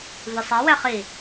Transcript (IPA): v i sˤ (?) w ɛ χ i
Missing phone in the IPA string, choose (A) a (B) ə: A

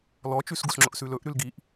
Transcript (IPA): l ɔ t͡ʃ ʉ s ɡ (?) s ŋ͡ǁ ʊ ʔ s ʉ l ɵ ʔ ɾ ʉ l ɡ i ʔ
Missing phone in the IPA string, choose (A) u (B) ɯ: A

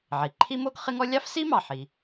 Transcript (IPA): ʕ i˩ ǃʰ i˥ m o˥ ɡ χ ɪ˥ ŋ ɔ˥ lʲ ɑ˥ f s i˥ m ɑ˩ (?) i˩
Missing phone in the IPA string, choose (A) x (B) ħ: B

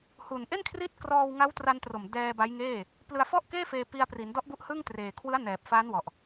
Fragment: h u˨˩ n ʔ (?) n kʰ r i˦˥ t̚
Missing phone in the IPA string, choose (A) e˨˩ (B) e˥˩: B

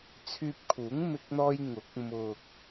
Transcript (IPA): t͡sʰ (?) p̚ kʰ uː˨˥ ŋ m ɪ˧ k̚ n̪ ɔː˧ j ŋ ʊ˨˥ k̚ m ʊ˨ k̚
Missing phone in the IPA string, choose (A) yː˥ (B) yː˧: B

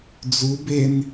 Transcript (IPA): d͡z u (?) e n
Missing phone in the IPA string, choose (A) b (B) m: A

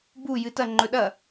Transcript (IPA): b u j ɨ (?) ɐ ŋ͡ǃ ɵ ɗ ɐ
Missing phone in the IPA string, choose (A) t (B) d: A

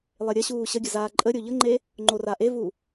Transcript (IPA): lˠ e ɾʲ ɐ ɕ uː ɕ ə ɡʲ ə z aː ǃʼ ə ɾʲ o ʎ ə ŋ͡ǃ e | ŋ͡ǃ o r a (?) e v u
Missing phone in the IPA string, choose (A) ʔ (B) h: A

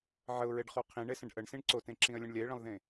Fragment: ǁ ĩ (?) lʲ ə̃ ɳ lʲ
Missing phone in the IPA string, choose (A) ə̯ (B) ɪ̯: A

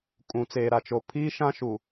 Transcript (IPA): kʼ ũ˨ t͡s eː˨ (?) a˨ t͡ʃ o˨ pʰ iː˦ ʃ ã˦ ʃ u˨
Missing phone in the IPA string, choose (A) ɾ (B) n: A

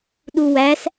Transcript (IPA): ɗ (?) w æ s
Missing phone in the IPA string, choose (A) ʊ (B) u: B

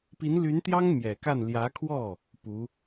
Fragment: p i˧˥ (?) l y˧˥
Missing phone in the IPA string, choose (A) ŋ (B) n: B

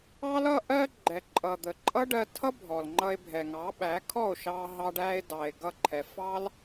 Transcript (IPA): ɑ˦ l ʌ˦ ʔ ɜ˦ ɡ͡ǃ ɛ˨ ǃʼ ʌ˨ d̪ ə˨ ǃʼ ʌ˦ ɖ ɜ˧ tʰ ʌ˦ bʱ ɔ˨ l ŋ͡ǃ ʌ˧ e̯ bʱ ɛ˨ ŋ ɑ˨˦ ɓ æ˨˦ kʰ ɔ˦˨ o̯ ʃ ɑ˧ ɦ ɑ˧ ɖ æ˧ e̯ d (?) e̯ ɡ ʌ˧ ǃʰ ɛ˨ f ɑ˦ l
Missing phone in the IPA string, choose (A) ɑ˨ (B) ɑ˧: A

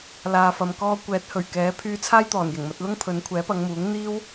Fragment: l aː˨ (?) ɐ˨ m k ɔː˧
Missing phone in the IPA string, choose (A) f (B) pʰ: A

